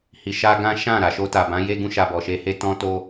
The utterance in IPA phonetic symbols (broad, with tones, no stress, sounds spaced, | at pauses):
h i˨ ʃ a˧ ɡ ã˦ ʃ ã˦˨ ɾ a˨ ʃ o˧ t a˨ b ã˨˦ j e˦ ɡ ũ˧ ʃ a˧ b ɔ˨ ʃ e˧ h e˦ t ɔ̃˦ t o˦